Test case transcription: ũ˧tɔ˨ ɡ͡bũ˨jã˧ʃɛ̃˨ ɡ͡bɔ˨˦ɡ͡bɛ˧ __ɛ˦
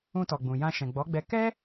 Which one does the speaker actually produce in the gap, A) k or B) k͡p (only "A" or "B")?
A